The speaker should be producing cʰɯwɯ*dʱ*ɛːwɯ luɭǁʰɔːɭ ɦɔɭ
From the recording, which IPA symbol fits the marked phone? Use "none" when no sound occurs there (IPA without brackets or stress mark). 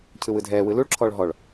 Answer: dʱ